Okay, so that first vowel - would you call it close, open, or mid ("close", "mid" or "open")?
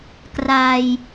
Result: open